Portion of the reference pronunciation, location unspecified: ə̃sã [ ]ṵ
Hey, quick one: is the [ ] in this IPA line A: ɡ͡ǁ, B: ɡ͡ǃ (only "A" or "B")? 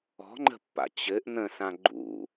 B